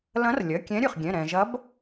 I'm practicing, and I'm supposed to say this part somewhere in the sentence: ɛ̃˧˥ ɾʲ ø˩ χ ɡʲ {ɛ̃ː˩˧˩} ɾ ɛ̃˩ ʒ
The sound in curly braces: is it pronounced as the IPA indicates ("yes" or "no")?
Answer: no